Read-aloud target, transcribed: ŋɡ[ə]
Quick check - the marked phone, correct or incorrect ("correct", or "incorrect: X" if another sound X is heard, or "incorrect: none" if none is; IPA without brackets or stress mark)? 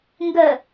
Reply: correct